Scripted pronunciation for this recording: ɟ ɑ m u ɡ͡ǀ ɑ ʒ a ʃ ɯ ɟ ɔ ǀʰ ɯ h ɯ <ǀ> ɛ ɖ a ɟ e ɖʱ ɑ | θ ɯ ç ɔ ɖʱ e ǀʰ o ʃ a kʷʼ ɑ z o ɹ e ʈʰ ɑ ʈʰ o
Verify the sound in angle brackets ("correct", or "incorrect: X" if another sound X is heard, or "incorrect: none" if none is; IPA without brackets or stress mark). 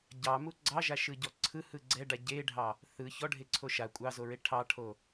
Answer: incorrect: ɡ͡ǀ